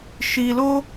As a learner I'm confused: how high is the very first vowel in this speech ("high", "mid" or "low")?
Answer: high